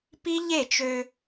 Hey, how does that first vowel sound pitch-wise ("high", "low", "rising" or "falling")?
high